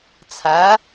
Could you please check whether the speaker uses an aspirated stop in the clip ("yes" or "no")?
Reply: yes